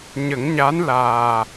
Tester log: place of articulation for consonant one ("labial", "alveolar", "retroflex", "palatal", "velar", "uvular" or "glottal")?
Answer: palatal